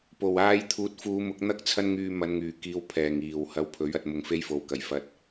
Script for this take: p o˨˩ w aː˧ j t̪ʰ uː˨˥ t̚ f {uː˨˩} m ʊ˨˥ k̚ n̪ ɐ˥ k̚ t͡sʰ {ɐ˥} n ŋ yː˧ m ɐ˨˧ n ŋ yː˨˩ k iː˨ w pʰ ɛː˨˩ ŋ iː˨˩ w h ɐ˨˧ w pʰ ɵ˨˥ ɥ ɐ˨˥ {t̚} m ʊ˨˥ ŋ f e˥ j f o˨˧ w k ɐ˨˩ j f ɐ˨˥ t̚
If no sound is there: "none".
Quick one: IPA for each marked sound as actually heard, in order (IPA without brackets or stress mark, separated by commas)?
uː˨˧, ɐ˥, t̚